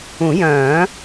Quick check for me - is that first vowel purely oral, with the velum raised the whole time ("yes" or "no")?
no